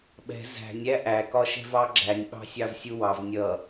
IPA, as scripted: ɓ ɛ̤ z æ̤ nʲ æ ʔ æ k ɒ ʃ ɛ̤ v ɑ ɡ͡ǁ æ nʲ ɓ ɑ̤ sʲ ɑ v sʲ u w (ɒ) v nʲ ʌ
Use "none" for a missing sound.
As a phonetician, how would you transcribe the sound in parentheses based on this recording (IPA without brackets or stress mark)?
ɑ